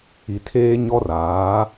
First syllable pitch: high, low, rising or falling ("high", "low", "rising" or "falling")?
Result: low